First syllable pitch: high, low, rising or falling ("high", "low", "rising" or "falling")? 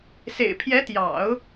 low